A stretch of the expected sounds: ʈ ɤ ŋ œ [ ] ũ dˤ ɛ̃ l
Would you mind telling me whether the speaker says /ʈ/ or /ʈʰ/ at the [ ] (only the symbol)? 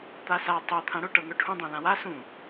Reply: ʈʰ